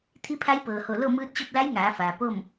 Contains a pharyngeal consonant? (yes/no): no